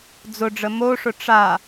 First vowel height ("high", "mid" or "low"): high